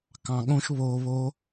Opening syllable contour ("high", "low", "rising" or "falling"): low